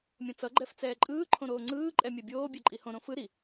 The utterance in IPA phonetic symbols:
mʲõt͡sʌ ɡ͡ǃɛft͡sɛːǃʼɯː ǃʰõɾoːŋ͡ǀɯː ǃʼɛmʲɛbʲoː bʲɛǃʼihõ ɾõfɯ ɾi

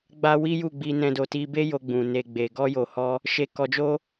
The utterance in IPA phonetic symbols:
ɡ͡ba˧ wi˦ju˦˨ ɡ͡bi˧nɛ̃˧ do˨ti˧be˦ jo˧ɡ͡bũ˨ne˨ ɡ͡be˨ ɡɔ˧jo˨hɔ˧ | ʃe˧kɔ˧d͡ʒo˦

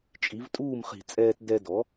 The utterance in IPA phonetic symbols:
t͡ʃʼi˩˥vtʼuː˥˩mχi̤˧˩˧t͡sʼɛː˧t dɛ˧ dɔ˩˥

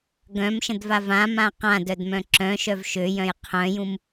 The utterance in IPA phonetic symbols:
ɡœ̃mʃə̃dva vãmã qãdœdmœ̃ ǁœ̃ʃœv ʃøjœ̃j qʰœ̃jũm

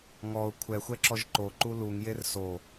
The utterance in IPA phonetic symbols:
ŋɔʊ̯ kʷʰɛxʷɛǁɔʒ ǃoǃu luŋjer so

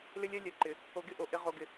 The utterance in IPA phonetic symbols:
lɪ˦lʲɛ˦ lʲɛ˨ǃɪ˨ | o˨ɡɪ˦˨ʔo˨ ʔɪ˨˦ ʁo˨ɡɪ˨

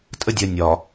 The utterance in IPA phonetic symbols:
tʼə˦dʲɜ˨ nʲɒ˨

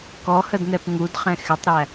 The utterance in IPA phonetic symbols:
kɔhədn̪ɛp ŋudχɛ̃ xɪtˤɾæ

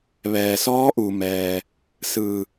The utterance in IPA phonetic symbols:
ʋɛː˩sɔː˧˥ʔu˩mɛː˩ | sɯː˧˩

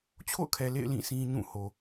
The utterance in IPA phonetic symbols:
t͡ɕʰo̰˦˨ʊ̯kʰɛ˨lḛ˦˨ɪ̯ lĩ˦˨ sʰĩ˦ɲũ˦˨ ho˨

